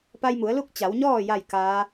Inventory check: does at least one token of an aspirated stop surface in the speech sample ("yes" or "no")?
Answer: no